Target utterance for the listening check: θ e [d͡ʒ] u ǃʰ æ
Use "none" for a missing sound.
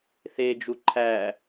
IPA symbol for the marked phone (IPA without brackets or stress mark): d͡ʒ